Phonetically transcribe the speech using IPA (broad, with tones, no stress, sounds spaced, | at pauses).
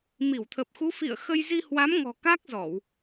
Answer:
m i˧˩ w t̪ʰ ə˨˩ p̚ x u˨˦ f ḭ˧˨ ə̯ x ə˧ j z i˧ h w a˨˦ m ŋ ɔ̤˨˩ k aː˦˥ k̚ z ɔ˧˩˨ w